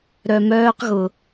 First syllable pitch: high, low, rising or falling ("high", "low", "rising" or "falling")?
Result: low